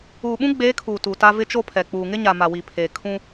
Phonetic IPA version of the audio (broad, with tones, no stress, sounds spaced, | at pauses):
uː˨ ɓ ũ˦ ɡ͡b eː˨˦ kʰ uː˨ t u˨ t a˦ v ɪ˦ t͡ʃ o˦ pʰ ɛ˨ k͡p uː˨ ŋ ɪ˦ ɲ a˨ m a˨ w i˨ pʰ eː˨ kʰ ũ˦